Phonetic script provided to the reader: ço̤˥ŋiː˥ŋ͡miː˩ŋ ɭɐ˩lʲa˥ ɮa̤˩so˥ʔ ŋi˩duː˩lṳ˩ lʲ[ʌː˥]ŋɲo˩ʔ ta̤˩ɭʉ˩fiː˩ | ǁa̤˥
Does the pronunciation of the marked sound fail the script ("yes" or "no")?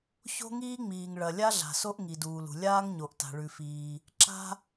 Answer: yes